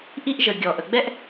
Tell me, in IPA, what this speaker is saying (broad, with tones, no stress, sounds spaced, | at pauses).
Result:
ʔ i˥ ʔ ʒ ə˩ ɡʲ ɔ˩ ʔ ə˩ ɡ͡b ɛ˥ ʔ